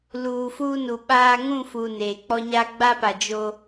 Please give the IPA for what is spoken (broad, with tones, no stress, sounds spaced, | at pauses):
l uː˨ f uː˦ n u˨ ɓ aː˦ ŋ ũ˦˨ f u˨ n eː˨ k͡p ɔ˦ ɲ a˦ ɡ͡b a˦ p a˨ d͡ʒ o˦